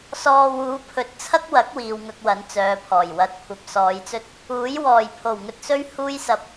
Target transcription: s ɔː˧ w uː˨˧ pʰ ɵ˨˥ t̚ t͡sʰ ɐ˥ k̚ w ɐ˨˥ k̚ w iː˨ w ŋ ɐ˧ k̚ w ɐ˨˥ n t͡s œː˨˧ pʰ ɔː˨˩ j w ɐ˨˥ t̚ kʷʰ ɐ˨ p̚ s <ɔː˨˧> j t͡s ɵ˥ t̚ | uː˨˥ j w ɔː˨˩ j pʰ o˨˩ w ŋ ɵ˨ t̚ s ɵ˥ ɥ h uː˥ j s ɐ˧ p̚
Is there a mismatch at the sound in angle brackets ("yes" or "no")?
no